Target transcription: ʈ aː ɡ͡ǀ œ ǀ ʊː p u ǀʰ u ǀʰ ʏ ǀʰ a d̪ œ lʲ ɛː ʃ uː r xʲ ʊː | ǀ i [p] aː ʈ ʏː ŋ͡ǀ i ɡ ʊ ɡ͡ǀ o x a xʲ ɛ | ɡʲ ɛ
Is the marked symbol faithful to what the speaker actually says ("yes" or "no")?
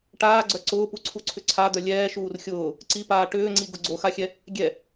yes